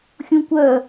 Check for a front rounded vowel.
present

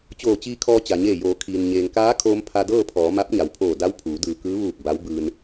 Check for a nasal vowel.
absent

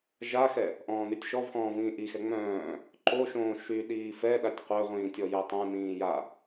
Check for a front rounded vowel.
present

